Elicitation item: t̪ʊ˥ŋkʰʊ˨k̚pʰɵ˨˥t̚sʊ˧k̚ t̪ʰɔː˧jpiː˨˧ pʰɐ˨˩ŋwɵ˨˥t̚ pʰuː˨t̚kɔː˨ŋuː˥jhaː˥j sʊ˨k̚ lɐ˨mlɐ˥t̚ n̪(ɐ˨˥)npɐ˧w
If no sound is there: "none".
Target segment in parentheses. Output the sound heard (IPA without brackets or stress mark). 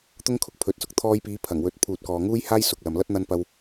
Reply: ɐ˧